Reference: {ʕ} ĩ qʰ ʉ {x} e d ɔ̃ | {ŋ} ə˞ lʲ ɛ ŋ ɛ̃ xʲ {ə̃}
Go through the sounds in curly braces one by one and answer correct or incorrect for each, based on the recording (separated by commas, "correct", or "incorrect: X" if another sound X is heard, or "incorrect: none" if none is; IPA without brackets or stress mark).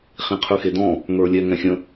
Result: incorrect: χ, correct, correct, correct